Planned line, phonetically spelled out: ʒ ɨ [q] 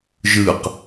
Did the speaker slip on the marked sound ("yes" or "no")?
no